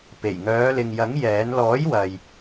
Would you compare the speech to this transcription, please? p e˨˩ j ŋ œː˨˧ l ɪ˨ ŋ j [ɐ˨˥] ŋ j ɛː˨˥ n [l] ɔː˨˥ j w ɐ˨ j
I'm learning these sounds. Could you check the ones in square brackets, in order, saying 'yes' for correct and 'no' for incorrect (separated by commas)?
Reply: yes, yes